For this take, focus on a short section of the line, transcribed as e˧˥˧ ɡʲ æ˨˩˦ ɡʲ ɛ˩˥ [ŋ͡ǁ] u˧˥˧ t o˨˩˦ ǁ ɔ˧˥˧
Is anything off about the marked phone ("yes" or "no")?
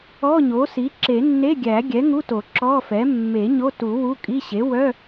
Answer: yes